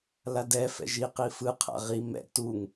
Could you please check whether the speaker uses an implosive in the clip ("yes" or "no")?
no